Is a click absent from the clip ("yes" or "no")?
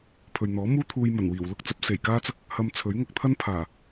yes